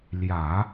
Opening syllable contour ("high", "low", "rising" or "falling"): low